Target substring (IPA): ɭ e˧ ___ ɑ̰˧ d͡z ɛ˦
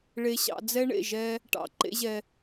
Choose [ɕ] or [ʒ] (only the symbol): ɕ